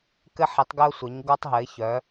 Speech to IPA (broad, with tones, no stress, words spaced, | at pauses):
kɘ˧ħi˩˧tˤɡœ˧ʊ̯ sʷɘ˩˧ɲ ɡɔ˧tˤɦɘ˩˧ɪ̯çœ˩˧